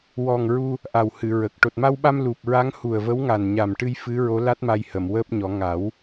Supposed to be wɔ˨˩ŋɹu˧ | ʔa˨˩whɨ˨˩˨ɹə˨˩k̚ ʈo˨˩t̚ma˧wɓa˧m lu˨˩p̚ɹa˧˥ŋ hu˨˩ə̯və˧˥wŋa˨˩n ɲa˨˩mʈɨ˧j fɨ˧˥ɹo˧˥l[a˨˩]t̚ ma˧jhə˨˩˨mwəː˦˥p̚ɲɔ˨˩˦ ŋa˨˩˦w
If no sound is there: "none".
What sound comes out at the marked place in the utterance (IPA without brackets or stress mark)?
a˦˥